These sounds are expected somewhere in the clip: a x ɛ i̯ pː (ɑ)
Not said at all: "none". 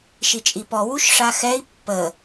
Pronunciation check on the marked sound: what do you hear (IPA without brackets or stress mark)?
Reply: ə